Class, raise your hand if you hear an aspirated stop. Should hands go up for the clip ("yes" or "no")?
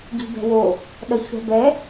no